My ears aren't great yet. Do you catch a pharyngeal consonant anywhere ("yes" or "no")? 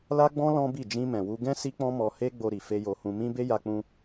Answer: no